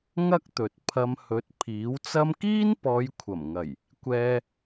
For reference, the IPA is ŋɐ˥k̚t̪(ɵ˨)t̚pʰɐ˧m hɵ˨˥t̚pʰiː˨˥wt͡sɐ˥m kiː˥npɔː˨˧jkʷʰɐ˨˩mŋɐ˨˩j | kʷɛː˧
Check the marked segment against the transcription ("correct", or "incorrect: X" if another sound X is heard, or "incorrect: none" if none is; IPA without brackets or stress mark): correct